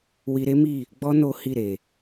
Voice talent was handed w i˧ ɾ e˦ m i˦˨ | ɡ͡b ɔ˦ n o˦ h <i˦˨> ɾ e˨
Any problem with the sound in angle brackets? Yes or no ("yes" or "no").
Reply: no